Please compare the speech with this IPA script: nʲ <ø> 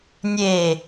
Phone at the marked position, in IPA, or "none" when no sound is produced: e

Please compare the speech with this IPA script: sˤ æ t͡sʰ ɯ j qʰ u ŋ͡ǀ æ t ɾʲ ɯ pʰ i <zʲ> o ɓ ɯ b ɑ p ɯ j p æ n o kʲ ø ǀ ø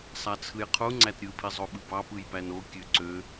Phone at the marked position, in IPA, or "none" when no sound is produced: zˤ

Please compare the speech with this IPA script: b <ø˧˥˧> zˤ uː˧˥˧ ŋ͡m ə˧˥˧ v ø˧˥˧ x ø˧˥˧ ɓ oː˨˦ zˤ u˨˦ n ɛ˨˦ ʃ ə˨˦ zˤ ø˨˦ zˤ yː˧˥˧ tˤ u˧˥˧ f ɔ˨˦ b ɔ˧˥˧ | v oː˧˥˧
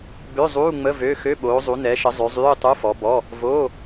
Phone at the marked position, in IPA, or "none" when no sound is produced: ø˧˥˧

